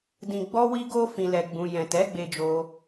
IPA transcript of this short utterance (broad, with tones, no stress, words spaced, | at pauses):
dĩ˨ɡ͡bɔ˧wi˧ ɡo˦ fĩ˧lɛ˧ɡ͡bũ˧ jɛ̃˨tɛ˨˦ɡ͡be˧d͡ʒo˧